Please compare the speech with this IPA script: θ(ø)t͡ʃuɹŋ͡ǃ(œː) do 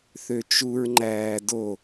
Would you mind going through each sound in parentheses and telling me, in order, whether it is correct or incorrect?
correct, incorrect

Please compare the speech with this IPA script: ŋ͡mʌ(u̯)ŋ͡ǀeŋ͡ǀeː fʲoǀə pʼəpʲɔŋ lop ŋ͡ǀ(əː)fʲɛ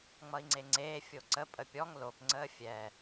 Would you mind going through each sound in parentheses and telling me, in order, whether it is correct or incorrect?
incorrect, correct

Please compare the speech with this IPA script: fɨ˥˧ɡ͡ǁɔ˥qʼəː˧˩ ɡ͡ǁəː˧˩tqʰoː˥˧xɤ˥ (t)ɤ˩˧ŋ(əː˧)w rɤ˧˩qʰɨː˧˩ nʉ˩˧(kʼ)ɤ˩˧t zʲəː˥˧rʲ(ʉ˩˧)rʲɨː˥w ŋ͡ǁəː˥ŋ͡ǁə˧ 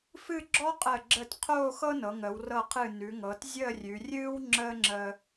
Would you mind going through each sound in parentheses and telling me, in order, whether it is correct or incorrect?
incorrect, incorrect, incorrect, correct

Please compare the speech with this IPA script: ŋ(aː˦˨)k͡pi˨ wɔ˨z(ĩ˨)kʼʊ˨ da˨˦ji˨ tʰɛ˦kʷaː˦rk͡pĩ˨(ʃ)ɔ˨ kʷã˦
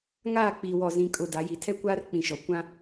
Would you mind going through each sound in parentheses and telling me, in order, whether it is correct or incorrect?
correct, correct, correct

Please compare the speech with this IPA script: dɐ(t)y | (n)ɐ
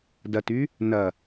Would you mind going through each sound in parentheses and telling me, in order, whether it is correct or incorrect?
correct, correct

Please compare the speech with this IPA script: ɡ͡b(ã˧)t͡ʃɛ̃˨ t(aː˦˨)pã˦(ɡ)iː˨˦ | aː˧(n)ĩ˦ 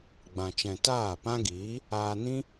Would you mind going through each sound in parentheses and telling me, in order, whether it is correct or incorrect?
incorrect, correct, correct, correct

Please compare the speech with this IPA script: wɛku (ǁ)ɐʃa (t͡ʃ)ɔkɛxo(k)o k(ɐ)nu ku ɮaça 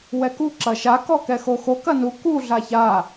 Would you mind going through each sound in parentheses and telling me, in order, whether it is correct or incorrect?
correct, incorrect, incorrect, correct

